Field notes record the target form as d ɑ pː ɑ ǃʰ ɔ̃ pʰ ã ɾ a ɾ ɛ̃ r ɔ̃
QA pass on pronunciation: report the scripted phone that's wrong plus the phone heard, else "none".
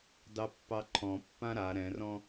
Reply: pʰ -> pː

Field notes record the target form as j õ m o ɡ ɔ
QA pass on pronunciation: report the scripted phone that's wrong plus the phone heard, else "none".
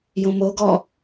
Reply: none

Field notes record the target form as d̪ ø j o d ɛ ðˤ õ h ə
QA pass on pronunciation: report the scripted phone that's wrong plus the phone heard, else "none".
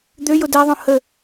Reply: none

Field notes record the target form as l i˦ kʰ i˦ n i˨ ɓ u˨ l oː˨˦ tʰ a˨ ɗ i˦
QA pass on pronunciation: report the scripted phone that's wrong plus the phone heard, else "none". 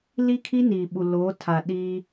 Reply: none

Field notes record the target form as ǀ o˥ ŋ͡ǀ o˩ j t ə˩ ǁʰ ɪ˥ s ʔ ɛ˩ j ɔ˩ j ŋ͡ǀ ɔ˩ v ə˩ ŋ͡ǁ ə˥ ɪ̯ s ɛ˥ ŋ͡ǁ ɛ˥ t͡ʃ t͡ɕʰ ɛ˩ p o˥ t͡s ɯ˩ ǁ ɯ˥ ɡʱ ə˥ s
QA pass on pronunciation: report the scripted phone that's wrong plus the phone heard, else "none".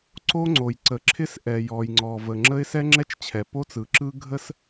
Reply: t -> ǀ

